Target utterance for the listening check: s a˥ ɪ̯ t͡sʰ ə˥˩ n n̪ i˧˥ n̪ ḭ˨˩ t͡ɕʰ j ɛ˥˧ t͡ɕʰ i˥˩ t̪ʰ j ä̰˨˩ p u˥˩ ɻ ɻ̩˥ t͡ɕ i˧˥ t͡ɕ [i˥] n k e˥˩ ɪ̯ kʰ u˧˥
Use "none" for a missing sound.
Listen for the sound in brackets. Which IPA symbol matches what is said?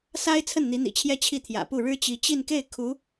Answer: i˥˧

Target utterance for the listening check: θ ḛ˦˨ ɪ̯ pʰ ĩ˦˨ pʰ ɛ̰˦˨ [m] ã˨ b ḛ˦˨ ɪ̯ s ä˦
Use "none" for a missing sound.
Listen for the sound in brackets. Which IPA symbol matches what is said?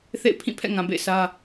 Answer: ŋ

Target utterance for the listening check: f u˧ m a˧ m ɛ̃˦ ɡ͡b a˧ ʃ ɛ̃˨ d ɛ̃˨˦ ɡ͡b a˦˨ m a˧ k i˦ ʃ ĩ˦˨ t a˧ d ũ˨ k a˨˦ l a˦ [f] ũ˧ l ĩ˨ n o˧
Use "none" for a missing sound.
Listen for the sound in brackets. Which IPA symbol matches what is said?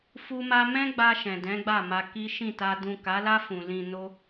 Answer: f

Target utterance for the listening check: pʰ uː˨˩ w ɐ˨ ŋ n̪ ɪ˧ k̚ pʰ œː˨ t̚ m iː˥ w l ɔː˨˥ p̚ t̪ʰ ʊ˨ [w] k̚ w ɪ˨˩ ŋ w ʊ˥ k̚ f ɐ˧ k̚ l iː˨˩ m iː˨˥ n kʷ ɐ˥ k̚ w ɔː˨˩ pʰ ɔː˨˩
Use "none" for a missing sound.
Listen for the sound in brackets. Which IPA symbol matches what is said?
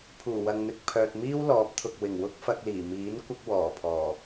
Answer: none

